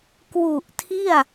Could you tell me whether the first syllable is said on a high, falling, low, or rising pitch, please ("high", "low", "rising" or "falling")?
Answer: low